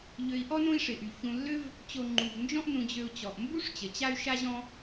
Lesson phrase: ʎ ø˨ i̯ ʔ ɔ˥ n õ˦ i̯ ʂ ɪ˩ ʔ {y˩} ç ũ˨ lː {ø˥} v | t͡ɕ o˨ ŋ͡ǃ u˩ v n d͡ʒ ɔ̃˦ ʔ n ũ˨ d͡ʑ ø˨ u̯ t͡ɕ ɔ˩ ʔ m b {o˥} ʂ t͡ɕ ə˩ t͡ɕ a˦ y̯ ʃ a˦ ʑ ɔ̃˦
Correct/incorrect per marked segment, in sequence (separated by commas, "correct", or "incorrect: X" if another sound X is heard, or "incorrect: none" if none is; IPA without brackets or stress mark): correct, correct, incorrect: u˥